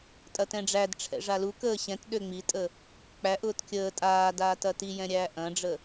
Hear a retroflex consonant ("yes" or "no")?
yes